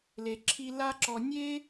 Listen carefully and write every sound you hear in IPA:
l e˩ ǁʰ i˧ l a˥ ǁ ɔ˧ nʲ e˥

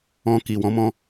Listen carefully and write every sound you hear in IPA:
ɔ̃˨ k i˨ w ɔ̃˨˦ m ɔ̃˧

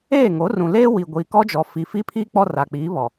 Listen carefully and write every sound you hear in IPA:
eː˦˨ ŋ o˨˦ r ũ˨ l eː˦ w i˨ ɡʷ iː˨ k ɔ˦ d͡ʒ ɔ˨ f i˨ f iː˦ pʰ iː˦ k͡p ɔ˦ r a˨ k͡p iː˨˦ β ɔ˨

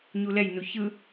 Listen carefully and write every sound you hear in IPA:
ɲ u l ɛ j n u ç ɯ

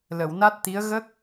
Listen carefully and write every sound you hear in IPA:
l ə˨˩˨ w n a˦˥ t̚ t̪ i˧˥ ə̯ ɣ ə˦˥ k̚

